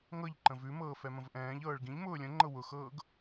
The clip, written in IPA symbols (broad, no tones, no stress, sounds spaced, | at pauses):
ŋ ɤ ʎ ǃ ə̃ v ʉ m ɤː f ɛ m ə̃ v ʔ ɛ̃ː ʎ ɤː ɭ ɡ ĩ ʎ m ʊː lʲ ə̃ ŋ͡ǃ ɤ w ʊ x ɤː ɡ